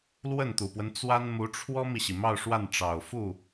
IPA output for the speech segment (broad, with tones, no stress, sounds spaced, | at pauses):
l w ə˥˩ n t̪ u˨˩ p w ə˦ n t͡s w a˥ n m u˧˥ ʈ͡ʂʰ w ɔ˥ m i˨ ɕ i˩ m ɑ˥˧ ʊ̯ ʂ w a˥˩ n ʈ͡ʂ ɑ˨˩ ʊ̯ f u˥˩